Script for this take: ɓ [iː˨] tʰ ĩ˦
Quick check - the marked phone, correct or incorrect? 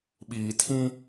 correct